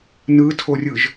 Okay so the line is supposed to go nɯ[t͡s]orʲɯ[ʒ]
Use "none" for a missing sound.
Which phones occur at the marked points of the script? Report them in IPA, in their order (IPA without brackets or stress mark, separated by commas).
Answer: tʰ, ʒ